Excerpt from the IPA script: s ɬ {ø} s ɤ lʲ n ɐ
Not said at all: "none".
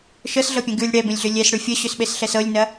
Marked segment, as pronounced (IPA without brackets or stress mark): ɛ